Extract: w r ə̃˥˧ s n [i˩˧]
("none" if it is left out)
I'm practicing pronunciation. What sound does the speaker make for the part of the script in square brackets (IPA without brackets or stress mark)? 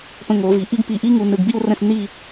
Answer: i˥˧